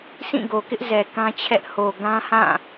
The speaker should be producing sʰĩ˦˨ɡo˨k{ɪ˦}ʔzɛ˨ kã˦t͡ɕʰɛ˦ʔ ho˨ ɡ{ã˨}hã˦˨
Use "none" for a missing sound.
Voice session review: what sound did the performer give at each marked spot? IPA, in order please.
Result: ɪ˦, ã˦

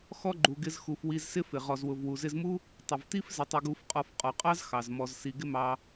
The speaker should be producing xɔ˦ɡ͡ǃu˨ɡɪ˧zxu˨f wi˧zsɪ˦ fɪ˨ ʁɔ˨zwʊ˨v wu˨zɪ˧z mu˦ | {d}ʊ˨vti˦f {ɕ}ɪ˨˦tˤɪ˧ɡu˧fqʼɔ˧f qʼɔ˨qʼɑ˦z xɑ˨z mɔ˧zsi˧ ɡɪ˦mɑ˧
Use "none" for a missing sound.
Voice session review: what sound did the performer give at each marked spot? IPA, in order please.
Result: tˤ, z

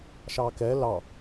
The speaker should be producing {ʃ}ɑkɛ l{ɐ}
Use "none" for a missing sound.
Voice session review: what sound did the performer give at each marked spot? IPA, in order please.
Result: ʃ, ɑ

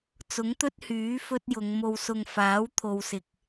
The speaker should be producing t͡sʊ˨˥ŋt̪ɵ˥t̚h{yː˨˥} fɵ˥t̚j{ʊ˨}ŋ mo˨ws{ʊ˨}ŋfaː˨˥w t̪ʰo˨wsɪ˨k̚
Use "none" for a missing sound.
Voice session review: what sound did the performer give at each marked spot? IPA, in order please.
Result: yː˨˥, ʊ˨˧, ʊ˨

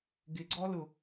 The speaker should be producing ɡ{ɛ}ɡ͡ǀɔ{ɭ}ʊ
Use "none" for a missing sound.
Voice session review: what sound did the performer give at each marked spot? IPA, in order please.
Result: ɪ, l

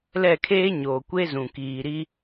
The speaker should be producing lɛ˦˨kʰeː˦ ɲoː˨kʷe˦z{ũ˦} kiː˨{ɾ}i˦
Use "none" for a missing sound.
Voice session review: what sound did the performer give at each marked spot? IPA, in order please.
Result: ũ˨, ɾ

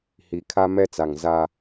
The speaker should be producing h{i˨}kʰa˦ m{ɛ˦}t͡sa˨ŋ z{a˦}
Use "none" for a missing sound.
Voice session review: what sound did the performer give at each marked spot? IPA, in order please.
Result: i˨, ɛ˦, a˦

